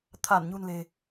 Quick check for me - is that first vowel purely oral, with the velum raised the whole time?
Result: yes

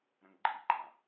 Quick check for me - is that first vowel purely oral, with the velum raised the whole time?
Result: no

